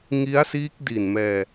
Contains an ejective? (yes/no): no